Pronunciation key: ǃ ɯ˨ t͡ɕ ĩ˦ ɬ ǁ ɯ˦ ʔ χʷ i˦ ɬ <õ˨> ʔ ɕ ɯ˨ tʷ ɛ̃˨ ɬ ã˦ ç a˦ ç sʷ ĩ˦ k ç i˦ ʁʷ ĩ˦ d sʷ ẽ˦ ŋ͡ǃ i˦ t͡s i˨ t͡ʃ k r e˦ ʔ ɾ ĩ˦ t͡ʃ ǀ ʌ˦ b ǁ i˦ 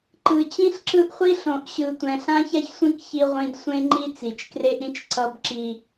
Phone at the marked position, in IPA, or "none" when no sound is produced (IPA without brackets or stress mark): õ˨